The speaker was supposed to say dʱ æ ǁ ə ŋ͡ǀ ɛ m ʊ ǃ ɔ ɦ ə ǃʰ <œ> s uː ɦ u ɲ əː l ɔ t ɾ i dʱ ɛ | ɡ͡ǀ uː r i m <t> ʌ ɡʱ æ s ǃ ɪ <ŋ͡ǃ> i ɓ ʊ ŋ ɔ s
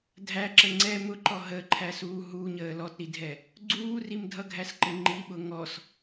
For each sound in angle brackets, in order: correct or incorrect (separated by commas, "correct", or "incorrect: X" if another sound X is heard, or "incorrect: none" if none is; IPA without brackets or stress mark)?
incorrect: æ, incorrect: dʱ, correct